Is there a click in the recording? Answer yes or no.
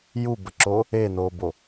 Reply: yes